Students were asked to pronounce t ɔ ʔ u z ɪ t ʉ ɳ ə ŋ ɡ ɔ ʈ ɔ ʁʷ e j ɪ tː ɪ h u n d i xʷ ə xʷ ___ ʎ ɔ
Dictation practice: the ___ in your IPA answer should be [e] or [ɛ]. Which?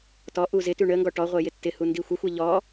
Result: ɛ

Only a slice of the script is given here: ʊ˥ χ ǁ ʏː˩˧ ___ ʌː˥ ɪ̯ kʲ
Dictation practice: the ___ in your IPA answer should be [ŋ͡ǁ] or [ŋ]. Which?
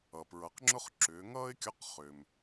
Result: ŋ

